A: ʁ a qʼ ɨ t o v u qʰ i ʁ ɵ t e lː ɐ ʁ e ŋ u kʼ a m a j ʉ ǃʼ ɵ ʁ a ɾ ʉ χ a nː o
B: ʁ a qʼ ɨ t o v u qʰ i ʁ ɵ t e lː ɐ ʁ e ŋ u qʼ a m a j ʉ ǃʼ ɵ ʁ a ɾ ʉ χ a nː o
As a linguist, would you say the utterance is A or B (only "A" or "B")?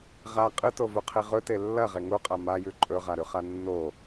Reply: B